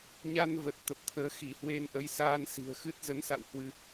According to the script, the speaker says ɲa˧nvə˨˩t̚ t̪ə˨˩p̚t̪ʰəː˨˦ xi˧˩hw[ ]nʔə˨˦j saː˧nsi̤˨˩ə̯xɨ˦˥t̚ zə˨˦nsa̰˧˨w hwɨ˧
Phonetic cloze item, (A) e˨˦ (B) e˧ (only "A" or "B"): B